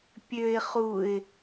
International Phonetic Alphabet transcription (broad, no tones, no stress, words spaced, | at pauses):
pʲøɪ̯ χuɪ̯